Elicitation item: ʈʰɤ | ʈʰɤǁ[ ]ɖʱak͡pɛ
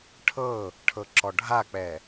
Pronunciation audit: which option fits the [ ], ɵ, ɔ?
ɔ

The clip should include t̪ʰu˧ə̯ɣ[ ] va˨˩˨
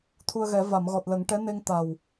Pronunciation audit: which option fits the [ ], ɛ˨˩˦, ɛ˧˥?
ɛ˨˩˦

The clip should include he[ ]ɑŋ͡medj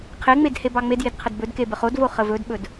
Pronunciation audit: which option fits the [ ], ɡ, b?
b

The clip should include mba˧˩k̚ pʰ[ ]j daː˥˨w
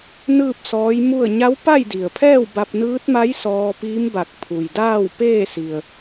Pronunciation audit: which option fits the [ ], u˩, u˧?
u˩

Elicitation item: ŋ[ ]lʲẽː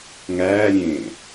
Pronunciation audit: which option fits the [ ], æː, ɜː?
æː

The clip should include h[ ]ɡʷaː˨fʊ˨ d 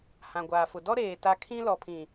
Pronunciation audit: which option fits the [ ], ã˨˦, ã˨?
ã˨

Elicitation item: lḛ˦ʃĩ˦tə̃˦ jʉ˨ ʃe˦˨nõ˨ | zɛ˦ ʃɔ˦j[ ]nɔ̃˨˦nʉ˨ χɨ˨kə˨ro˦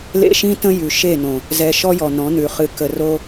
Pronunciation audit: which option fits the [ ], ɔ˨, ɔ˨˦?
ɔ˨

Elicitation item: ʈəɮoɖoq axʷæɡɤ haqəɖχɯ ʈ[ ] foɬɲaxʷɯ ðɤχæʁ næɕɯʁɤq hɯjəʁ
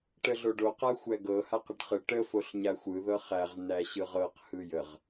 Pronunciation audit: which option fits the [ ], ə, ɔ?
ə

